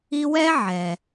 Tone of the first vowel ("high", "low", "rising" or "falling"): high